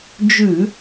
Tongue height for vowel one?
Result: high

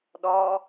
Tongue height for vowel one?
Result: low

